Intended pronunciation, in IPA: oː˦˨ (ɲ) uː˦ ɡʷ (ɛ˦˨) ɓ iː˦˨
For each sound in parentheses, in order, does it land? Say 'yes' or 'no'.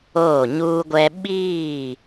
yes, no

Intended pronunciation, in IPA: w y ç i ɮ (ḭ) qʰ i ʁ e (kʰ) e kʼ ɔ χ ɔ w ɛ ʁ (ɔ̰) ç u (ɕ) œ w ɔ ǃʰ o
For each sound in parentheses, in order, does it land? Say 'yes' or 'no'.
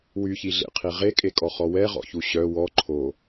no, no, yes, yes

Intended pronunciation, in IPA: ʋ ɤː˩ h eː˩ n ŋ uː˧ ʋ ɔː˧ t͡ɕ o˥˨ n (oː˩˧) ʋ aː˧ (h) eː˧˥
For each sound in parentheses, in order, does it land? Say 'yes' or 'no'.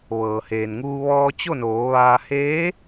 yes, yes

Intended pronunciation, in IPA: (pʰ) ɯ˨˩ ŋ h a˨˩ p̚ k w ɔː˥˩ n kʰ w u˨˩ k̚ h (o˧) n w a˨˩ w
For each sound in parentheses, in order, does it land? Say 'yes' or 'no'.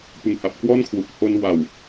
no, yes

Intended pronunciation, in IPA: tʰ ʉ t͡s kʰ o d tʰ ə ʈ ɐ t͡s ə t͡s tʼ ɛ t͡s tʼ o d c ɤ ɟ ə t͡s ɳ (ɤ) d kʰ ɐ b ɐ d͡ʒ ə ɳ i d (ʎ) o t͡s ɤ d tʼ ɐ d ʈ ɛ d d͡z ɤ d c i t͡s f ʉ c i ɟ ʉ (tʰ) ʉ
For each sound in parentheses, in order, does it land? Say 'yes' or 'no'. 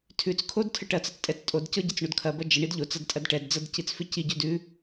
no, yes, no

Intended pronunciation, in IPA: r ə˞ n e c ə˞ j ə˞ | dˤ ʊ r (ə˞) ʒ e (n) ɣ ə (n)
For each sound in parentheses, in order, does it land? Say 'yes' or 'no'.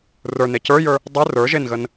yes, yes, yes

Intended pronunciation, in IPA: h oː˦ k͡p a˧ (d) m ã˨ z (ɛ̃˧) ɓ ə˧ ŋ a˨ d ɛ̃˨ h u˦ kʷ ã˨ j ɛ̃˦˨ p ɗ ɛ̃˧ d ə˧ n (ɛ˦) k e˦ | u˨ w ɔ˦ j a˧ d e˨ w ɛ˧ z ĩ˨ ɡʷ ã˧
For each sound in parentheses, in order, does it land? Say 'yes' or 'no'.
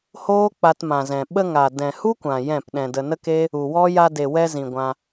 no, no, no

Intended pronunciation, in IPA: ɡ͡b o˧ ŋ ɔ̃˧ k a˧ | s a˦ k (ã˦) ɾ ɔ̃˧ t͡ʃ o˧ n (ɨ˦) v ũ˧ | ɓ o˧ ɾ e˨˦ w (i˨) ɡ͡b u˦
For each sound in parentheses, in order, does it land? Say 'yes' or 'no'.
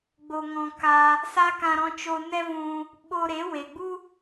no, no, no

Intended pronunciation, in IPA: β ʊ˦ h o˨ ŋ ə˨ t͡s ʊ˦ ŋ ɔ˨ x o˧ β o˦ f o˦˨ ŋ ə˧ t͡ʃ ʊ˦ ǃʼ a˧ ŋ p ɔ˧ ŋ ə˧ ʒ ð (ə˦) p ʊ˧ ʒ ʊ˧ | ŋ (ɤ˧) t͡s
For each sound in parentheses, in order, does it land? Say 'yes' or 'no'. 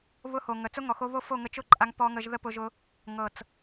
yes, no

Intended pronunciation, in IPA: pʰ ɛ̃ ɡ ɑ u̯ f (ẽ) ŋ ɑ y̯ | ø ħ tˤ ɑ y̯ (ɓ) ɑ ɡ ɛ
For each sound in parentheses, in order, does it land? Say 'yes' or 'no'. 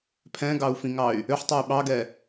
no, yes

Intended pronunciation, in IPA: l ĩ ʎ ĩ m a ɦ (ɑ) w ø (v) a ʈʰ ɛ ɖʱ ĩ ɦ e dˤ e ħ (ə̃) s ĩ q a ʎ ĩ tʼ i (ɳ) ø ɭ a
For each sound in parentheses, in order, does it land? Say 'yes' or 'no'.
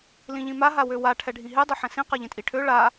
no, no, no, no

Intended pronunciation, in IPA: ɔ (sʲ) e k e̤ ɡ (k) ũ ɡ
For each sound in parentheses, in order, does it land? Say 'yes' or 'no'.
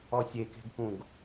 yes, yes

